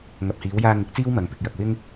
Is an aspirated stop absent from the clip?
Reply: yes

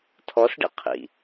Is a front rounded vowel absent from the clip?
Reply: yes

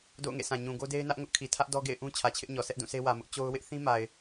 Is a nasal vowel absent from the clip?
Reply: no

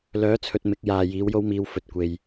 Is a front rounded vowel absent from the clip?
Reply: no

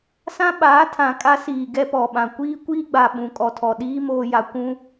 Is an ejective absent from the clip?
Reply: no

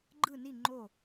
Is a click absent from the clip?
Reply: no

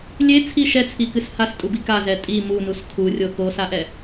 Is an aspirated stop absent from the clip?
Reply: no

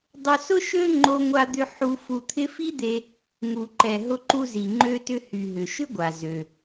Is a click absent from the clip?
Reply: no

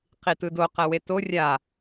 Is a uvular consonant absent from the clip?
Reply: no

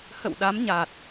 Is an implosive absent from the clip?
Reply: no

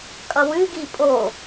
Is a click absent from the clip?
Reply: yes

